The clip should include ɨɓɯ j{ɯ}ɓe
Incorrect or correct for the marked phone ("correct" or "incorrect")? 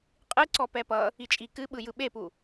correct